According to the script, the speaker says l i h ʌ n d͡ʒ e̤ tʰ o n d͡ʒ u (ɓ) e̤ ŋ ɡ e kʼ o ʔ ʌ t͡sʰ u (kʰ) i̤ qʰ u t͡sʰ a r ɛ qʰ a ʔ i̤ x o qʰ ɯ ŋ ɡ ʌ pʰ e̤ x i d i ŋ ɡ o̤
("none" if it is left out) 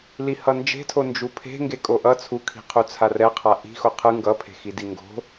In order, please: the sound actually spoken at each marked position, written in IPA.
pʰ, kʰ

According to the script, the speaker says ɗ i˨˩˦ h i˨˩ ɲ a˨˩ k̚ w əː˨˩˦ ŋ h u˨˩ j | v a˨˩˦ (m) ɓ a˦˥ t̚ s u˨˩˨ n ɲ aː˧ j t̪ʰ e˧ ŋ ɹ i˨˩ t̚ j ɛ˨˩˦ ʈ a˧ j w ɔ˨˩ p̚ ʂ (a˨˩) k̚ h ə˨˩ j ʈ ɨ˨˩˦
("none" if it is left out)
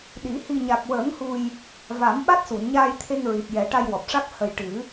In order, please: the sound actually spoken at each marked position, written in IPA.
m, a˦˥

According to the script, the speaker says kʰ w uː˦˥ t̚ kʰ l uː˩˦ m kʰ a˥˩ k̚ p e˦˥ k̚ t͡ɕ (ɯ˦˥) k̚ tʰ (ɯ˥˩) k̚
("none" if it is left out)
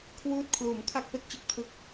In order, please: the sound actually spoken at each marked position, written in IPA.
ɯ˦˥, ɯ˦˥

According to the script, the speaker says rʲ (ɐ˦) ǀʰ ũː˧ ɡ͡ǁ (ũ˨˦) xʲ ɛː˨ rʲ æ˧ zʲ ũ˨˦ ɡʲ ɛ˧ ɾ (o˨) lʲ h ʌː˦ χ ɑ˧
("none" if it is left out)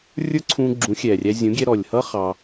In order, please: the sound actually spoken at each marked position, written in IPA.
ə˞˦, ũ˨˦, ɔ˨

